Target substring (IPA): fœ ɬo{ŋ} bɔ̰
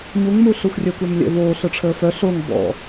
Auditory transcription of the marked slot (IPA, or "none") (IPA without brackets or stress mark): ŋ